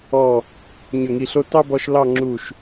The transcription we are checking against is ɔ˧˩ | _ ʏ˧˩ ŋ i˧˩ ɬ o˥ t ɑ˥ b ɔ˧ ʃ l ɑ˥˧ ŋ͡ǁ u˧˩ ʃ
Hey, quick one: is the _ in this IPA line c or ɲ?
ɲ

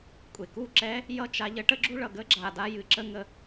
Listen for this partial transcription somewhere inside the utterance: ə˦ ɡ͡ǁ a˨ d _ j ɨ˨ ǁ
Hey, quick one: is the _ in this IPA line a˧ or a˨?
a˧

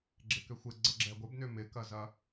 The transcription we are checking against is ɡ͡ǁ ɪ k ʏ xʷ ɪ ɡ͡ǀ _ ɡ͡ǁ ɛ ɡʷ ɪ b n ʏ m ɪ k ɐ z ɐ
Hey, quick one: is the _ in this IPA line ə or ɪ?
ə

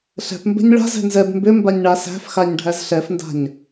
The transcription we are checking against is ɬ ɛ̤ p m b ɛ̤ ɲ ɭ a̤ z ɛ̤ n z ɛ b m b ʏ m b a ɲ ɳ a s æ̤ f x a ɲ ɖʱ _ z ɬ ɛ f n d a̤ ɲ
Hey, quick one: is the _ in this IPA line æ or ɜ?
æ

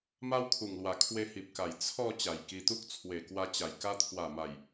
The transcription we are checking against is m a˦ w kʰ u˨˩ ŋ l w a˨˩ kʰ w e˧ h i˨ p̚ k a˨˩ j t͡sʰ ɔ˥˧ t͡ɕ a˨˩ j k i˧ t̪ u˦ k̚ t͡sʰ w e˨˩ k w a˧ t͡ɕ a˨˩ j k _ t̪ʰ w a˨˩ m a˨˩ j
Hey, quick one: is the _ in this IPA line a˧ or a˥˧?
a˧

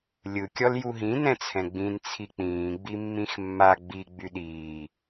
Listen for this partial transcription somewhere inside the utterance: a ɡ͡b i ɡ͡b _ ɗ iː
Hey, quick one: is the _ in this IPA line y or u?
y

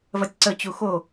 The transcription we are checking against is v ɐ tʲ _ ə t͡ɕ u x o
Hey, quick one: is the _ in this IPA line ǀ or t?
ǀ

